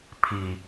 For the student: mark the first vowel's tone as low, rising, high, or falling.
low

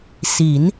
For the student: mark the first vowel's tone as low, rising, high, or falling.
rising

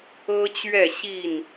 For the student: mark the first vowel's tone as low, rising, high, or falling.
high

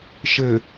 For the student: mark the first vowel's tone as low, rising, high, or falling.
low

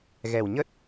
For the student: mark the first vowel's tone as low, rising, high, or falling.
low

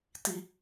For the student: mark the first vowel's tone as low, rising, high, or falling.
high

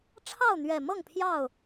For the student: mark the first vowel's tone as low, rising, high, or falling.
falling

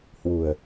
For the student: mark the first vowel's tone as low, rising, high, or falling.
low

